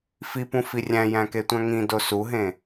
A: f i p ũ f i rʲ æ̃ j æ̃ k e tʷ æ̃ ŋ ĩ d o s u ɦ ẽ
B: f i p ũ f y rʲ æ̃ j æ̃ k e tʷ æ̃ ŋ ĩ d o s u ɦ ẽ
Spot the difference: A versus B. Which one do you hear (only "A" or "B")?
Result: A